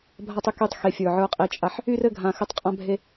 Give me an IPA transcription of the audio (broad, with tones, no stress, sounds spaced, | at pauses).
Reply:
bʱ a˦ tˤ y˨ k y˦ tˤ x e˨ fʲ ə˞˨ ʕ ə˞˦ qʼ e˦ t͡ʃʼ a˦ ħ | y˦ r ɘ˦˨ ɡʱ ã˨ x ɘ˦ tˤ qʼ ã˦ bʱ e˦